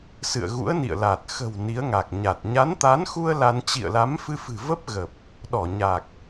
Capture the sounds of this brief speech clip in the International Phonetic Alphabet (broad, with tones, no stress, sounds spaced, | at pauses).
s ɨ̰˧˨ ə̯ ɣ ṵ˧˥ ə̯ n ḭ˧˨ ə̯ l a˨˩ t̚ x ə̤˨˩ w n i˨˦ ə̯ ŋ a˨˩ k̚ ɲ a˨˩ t̚ ɲ a˨˦ n t̪ a˨˦ n x u˧ ə̯ l a˧ n t͡ɕ ḭ˧˨ ə̯ l a˨˦ m f ɨ˧ f ɨ̤˨˩ v ə˦˥ p̚ ɣ ə˨˩ p̚ | ɗ ɔ˧˩ ɲ a˨˩ k̚